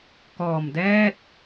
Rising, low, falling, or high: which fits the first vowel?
low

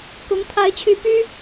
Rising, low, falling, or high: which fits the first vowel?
rising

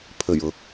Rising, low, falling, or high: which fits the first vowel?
low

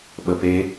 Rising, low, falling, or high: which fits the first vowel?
low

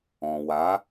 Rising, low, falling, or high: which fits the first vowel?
low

